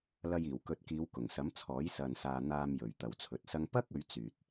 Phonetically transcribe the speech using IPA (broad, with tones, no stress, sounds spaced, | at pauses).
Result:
l ɐ˧ j iː˨˩ w k ɵ˨˥ t̚ k iː˨˧ w k ʊ˨˩ ŋ s ɐ˨˥ m t͡sʰ ɔː˨˥ j s ɐ˨ n s aː˨ n̪ aː˨ m j ɵ˨ ɥ t̪ ɐ˨ w t͡sʰ ɵ˨˥ t̚ s ɐ˥ ŋ p ɐ˥ k̚ ɵ˨˧ ɥ t͡s yː˨ t̚